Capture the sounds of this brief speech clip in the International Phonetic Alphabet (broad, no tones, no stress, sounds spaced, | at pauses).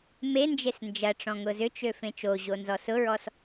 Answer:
m e n d͡ʒ e s n d͡ʒ ɐ ʈ͡ʂ ɔ̃ ŋ ʊ z ʏ t͡ʃ ø f ẽ t͡ʃ o ʑ o n z ɔ s ʊ ɹ ɔ s